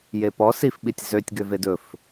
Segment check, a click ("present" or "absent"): absent